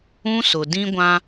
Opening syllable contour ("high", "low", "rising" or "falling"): high